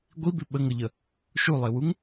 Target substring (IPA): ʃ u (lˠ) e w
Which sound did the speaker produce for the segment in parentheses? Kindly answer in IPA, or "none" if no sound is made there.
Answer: lˠ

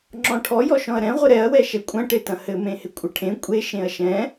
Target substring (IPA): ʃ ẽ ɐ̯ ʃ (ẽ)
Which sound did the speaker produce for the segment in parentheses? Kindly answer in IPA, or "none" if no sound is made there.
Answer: ɛ̃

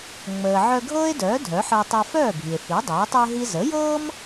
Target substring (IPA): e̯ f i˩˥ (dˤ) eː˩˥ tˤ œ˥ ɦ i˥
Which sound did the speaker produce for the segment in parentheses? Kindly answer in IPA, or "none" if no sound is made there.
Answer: dˤ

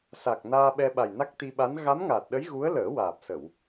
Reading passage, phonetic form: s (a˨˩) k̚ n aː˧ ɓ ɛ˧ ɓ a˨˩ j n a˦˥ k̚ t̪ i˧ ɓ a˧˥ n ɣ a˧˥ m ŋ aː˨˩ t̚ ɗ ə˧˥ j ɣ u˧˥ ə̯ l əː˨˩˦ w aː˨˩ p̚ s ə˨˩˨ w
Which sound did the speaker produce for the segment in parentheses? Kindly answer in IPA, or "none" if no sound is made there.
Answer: a˨˩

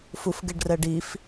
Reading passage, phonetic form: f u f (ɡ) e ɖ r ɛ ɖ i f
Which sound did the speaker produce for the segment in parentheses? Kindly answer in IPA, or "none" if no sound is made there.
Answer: ɡ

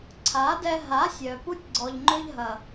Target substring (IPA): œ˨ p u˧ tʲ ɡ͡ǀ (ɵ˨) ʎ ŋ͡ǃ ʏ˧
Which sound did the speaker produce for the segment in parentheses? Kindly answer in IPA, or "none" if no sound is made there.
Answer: ɔ˨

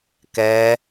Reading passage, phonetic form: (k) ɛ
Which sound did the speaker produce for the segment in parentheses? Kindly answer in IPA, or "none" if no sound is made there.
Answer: k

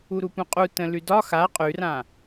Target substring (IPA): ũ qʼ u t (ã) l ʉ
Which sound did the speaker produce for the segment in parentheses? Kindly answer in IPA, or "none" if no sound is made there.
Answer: ə̃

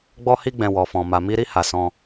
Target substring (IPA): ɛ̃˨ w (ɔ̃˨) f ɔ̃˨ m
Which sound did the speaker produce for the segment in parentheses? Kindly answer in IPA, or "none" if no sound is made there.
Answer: ɔ˨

